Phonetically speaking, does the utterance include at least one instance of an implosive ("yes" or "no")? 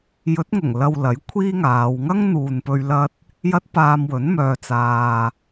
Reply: no